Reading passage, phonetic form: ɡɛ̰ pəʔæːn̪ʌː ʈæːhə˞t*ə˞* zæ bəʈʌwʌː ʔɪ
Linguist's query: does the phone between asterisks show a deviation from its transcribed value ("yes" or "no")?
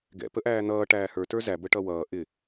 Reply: no